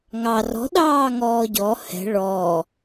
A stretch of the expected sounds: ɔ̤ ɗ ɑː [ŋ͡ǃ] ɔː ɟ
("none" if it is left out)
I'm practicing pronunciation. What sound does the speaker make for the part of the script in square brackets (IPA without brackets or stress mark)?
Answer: ŋ